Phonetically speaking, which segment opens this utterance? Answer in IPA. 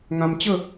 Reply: ŋ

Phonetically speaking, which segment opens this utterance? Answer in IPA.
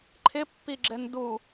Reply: ǃʰ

